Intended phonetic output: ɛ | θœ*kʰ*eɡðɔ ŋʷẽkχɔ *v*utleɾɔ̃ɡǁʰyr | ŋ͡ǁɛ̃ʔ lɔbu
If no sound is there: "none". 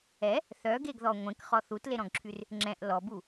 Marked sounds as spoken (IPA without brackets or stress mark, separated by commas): ɡ, θ